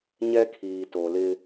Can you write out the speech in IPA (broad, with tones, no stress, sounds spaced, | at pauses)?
ɲ ɛ˦ kʰ iː˨ t o˨ l ɪ˦